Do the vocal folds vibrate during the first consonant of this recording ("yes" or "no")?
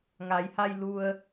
yes